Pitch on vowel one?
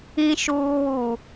low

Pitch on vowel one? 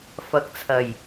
rising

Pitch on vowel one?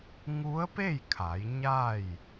rising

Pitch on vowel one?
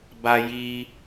high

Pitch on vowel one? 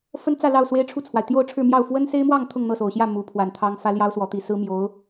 high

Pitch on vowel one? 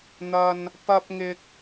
high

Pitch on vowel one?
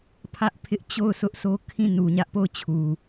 high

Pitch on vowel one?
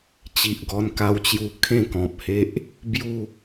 low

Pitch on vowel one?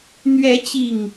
rising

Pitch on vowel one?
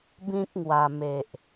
high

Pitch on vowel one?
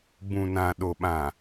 low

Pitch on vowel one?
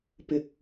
low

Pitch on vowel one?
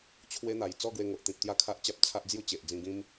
high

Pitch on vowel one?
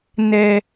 high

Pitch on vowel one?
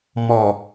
low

